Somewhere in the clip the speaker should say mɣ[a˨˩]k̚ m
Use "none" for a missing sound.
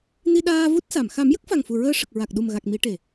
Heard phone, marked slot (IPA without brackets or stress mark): a˨˩